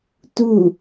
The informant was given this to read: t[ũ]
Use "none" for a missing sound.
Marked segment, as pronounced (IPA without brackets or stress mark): u